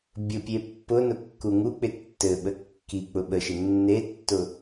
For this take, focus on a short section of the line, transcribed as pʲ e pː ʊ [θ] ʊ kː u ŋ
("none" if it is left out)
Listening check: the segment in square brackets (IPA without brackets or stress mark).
n